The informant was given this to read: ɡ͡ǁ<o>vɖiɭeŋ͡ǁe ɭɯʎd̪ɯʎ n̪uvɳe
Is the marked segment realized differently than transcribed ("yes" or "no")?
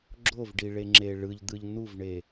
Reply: no